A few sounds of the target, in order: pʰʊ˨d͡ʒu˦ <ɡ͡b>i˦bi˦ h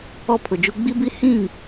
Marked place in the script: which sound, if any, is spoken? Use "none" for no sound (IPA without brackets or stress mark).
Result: ɡ͡b